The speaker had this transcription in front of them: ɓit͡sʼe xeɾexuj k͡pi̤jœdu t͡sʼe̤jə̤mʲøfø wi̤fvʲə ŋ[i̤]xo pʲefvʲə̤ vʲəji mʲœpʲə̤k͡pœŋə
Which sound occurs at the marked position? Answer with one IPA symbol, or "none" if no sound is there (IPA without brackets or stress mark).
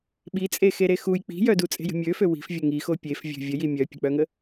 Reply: i